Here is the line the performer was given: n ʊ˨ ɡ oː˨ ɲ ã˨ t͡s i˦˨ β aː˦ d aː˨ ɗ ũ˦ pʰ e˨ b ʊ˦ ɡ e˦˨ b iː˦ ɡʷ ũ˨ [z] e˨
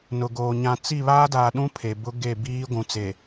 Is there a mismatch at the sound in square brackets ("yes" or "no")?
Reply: yes